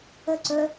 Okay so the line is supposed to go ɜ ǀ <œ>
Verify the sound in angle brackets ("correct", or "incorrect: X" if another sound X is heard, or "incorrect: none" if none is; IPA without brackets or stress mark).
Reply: correct